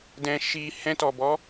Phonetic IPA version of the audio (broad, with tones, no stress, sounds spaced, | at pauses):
d ɛ̃˧ ʃ i˧ h ɛ̃˧ t ɔ˨ b ɔ˨˦